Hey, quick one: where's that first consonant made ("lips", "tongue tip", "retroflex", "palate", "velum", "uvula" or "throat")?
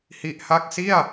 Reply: throat